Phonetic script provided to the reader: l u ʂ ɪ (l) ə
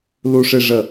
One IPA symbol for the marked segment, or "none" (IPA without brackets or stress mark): ʐ